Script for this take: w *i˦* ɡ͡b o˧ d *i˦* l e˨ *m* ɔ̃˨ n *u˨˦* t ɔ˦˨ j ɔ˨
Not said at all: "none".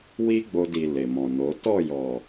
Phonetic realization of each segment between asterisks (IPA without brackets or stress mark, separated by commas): i˦, i˨, m, o˨˦